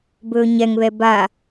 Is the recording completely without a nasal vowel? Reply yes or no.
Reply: yes